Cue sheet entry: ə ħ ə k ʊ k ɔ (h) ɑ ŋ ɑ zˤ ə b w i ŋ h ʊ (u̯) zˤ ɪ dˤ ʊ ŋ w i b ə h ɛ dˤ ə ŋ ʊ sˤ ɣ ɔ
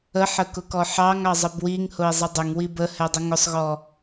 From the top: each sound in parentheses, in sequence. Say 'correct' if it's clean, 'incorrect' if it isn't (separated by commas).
incorrect, incorrect